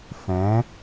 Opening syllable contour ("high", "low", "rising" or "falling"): rising